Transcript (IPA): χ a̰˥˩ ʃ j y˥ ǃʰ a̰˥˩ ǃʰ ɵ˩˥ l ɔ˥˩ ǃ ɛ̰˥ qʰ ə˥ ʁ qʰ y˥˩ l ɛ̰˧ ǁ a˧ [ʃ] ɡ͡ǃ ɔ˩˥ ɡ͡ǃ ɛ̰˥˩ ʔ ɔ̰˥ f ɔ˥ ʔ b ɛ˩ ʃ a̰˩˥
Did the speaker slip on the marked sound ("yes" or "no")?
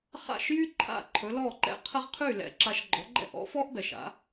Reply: no